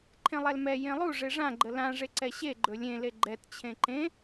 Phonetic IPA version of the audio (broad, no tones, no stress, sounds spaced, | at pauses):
ǃʰ ẽ lˠ ɛ l m ɛ j ẽ lˠ u ʐ e ʐ ã ɡ͡ǃ ə l ã ʐ e ǀ ɛ ɕ e ɡ͡ǃ ɵ lʲ ẽ l e ɡ͡ǃ ɛ t t͡ɕʰ ẽ ǃ ẽ